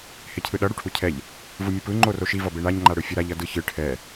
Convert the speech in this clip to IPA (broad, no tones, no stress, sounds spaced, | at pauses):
h e cʰ ɯ ɗ ʌ ɽ u ʈʰ u cʰ ɛ ʎ | v ɯ mʲ ɯ p ɯ ŋ͡ǃ o r o ʃ i v ʌ b e ɳ a ɲ ŋ͡ǃ a ɽ ɯ fʲ ʌ ɾ a ʎ ʌ d ɯ ç ɯ ʈʰ ɛ